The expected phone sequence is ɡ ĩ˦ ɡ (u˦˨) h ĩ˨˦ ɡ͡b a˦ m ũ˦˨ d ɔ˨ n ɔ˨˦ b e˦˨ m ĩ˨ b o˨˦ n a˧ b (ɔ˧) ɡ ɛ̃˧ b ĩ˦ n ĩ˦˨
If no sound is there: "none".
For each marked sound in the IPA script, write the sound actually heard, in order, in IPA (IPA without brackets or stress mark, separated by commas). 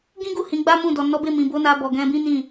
u˦˨, ɔ˨